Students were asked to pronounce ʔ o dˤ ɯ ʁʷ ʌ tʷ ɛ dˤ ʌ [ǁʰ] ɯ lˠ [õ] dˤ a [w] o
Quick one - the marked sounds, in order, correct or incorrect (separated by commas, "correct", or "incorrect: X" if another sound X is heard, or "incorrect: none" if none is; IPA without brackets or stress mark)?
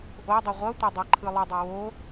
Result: incorrect: ǃʰ, incorrect: o, correct